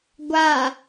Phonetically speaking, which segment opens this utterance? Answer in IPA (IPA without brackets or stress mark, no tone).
ɡʷ